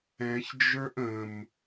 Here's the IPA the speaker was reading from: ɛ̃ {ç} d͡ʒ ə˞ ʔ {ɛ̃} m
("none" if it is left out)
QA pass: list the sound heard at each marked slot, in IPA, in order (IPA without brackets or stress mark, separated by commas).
ç, ə̃